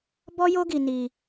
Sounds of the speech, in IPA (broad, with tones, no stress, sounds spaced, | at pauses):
b ɔ˦ j o˦ ɡ i˧ n i˧